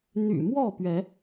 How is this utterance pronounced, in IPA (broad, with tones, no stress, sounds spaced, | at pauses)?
n̪ y̰˨˩ m w ɔ˥˨ p ɥ ɛ˨˦